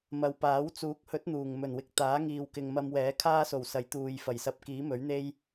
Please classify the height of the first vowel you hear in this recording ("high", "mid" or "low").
low